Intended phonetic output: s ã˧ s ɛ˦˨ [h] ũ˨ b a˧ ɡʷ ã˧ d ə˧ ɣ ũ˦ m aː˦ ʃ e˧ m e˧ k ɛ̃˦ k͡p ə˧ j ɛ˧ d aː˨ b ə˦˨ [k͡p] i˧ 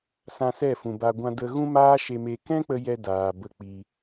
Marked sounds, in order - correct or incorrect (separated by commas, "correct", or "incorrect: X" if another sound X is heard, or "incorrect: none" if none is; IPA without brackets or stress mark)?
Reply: incorrect: f, correct